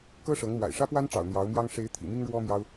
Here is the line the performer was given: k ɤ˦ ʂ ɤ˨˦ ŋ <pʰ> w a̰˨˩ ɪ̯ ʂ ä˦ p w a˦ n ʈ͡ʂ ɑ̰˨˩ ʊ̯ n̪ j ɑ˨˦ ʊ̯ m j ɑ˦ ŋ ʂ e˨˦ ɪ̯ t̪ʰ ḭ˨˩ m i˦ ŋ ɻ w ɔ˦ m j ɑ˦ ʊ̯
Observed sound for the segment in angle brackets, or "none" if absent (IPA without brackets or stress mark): m